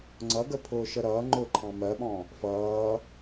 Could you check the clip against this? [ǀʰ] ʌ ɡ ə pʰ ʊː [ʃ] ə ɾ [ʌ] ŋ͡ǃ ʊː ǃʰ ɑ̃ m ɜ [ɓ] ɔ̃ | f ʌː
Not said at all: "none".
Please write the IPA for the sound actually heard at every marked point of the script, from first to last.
ŋ͡ǀ, ʃ, ʌː, ɓ

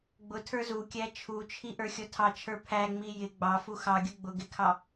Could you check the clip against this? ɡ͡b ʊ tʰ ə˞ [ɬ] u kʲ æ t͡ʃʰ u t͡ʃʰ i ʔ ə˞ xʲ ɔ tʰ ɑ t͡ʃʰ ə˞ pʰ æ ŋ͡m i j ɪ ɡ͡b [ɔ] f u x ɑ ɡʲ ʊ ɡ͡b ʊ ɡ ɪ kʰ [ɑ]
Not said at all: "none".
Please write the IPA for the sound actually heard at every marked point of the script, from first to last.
z, ɑ, ɑ

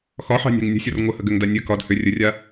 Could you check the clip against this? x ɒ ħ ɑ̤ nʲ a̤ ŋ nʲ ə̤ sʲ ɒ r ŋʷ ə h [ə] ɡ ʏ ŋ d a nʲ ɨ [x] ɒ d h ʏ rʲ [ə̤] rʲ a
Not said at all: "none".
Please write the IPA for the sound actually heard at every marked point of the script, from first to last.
ə, k, ə

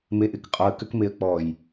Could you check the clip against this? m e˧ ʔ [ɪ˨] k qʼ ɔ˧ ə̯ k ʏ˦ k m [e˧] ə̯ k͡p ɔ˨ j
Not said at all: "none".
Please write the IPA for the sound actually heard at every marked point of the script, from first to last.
ɪ˨, e˧

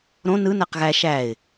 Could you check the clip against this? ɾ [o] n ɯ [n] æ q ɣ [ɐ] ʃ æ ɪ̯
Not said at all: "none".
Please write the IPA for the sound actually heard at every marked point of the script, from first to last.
õ, n, æ

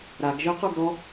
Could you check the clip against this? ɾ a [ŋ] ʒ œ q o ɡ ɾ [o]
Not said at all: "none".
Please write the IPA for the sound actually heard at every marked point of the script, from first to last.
ɡ, ɔ

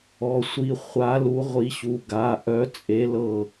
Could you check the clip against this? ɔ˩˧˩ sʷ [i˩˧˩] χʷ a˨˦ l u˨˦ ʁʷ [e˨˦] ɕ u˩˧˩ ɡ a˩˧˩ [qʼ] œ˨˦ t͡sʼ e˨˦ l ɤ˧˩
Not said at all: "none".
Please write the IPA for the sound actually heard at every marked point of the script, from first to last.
i˩˧˩, i˨˦, ʔ

